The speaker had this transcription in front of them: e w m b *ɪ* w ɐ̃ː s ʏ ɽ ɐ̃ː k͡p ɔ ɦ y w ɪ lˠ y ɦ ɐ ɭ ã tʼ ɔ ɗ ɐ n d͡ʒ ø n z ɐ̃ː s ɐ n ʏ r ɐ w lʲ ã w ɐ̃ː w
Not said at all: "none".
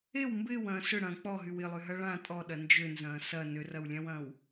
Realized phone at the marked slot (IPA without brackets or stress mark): ɪː